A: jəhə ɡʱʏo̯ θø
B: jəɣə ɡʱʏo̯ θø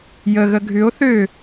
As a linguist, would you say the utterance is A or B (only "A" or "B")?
B